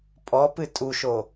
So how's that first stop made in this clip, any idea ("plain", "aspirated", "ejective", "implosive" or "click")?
ejective